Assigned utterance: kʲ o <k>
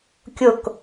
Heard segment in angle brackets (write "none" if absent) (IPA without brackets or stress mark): k